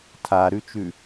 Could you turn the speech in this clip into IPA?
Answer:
tʰ a ɾ ʉ t͡ʃ ʉ

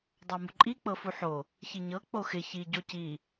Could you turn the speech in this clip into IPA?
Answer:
dˤ ɑ m u ǃʼ i k͡p ɤ f u ħ o | ç i ɲ ɤ k͡p o x ɪ ç i ɟ o c i

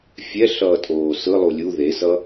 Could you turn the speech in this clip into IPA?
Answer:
fʲ ɛ ɬ ʌː tʼ oː s ɯ lˠ u lʲ u ð e s ʌ

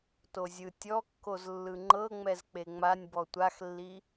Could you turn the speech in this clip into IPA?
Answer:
t o zʲ ɯ tʲ ɔ kː o z lː ɯ ŋ͡ǃ ɤ ŋ͡m ɛ z k͡p e ŋ͡m a nʲ b ɔ tʷ a x lː i

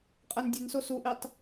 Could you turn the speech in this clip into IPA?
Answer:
qʼ æ n dʲ e n s o s u ʔ i tˤ

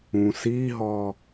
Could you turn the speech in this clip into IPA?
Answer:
ũ s i ɦ ɔ

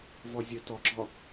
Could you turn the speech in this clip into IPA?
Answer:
v ɔ zʲ ə t ɔ ɡ͡ǁ ɔ

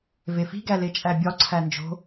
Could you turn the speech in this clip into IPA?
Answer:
v e f i̤ ɡ æ l e t͡ʃʼ æ bʲ ɒ ǀʰ æ n d͡ʒ o̤

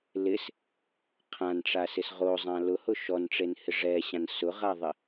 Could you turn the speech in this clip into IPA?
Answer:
l ɪ s | qʰ ã n ʈ͡ʂ a s ɪ s ʁ o zˤ ã l ʊ h ʊ ʃ ɔ n ʈ͡ʂ e n h ɪ ʐ ɛ ɕ ã n s ʊ ʁ a ðˤ ɪ

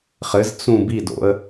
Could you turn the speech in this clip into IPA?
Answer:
χ ɘ z t͡s ũ b i d o̰ ə̯

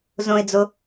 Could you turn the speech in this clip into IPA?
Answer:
z õ ɪ̯ d͡z o

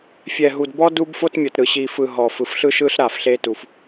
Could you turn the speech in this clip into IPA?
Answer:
fʲ ɛ˨ ɦ u˨ d b ɔ˦ d u˦ b f o˦ t mʲ ɤ˨ t ɾ ɯ˨ ɕ i˨ f ɯ˨ ɦ ɔ˨ f ɯ˨ f ɬ ɯ˦ ʃ ɯ˦ ɬ ɾ a˨ f ɬ e˦ t u˨ f

